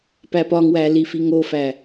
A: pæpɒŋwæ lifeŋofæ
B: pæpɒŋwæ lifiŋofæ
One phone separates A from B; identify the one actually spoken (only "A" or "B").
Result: B